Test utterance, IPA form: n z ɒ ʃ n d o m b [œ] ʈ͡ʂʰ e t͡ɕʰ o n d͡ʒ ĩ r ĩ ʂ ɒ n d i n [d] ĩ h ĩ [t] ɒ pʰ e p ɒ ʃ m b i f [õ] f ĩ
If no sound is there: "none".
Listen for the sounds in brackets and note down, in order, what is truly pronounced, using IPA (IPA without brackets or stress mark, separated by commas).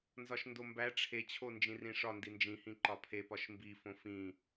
æ, d͡ʒ, ǃ, õ